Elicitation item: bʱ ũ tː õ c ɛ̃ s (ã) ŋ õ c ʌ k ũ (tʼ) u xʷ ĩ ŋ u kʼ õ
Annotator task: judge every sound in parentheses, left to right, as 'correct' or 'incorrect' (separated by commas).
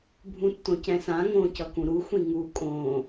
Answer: correct, incorrect